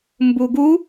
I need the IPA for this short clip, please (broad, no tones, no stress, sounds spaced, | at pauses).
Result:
m b u ɡ u